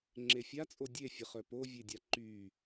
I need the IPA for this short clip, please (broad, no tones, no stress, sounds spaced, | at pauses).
ŋ͡ǁ e fʲ a t͡sʼ o dʲ e fʲ ə χ œ p o vʲ e dʲ a ǃ y